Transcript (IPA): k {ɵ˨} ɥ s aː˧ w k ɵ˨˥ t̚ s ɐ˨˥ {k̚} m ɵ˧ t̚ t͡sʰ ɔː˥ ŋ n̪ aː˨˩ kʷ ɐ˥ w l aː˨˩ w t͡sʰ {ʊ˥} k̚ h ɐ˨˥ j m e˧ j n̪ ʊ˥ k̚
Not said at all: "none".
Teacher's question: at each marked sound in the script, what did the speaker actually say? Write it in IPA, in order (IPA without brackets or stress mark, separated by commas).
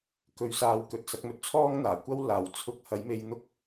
ɵ˧, k̚, ʊ˧